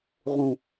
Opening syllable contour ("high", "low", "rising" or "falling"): low